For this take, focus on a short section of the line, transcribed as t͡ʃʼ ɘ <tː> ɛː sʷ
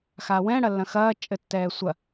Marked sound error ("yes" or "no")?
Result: no